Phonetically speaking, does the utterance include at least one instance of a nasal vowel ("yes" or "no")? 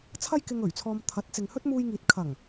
no